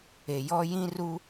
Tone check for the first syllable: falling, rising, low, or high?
low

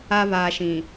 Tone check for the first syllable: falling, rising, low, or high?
high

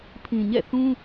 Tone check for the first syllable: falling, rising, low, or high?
low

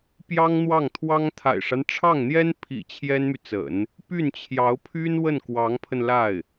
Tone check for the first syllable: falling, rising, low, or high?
high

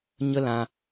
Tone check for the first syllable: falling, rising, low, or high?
high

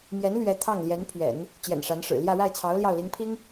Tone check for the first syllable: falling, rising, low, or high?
rising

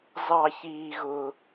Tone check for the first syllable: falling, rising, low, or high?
high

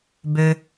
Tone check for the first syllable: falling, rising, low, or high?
low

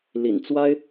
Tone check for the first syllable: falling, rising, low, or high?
low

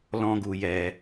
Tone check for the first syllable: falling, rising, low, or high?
high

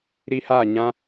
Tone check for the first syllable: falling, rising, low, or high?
high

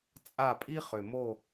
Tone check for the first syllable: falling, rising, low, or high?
falling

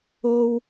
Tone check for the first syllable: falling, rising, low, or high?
high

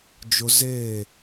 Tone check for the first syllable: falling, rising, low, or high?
high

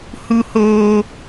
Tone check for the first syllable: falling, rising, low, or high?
high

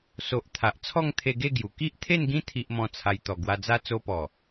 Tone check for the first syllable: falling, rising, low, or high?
low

